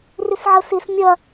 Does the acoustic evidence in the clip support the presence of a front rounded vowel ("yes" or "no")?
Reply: yes